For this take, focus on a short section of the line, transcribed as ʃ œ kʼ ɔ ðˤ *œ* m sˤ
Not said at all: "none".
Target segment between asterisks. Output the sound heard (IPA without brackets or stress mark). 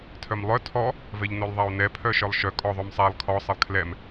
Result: œ